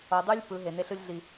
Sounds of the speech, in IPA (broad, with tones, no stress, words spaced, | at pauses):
o˨dˤu˦lʲ pɯ˨˦ ɦe˨ne˦ɬɯ˦lʲ ɮi˨